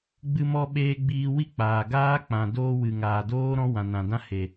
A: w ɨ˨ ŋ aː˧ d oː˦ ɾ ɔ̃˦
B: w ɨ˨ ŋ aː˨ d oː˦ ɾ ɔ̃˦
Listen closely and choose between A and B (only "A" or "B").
B